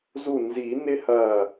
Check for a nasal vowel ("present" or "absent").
absent